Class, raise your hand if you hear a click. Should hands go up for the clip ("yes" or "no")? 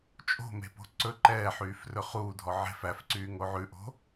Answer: yes